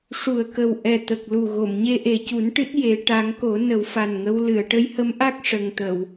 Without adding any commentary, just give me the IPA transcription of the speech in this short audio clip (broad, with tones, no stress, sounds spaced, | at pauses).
ʂ u˨˩ ə̯ k ə˨˩ w ʔ ɛ˨˩ t̪ ə˨˩ k̚ l u˨˩ ɣ o˨˩˨ m ɲ e˧ ʔ e˨˩ c u˨˩˦ n ʈ ɨ˦˥ t̚ j e˨˩˦ ʈ a˨˩˦ ŋ k o˨˩˦ n ə˨˩˦ w f a˨˩ n ŋ ə˧˥ w l ɨ˨˩˨ ə̯ ʈ ə˧˥ j h ə˧˥ m ʔ a˦˥ k̚ ʂ ə˨˩ ŋ t̪ ə˨˩˨ w